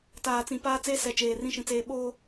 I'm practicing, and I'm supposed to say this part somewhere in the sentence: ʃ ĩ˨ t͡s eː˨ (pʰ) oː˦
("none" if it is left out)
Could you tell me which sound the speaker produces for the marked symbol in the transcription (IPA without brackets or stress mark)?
ɓ